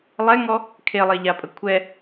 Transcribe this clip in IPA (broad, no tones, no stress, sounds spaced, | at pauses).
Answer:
lˠ ɛ ŋ ɔ | kʰ e lˠ e ʎ a pʼ ə kʷʰ ɛ